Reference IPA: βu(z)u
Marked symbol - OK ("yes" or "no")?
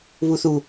no